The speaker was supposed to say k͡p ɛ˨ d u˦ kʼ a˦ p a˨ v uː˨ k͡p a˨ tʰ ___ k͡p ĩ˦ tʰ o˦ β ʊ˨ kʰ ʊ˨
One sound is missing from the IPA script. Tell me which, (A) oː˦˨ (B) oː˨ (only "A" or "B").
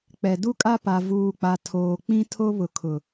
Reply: B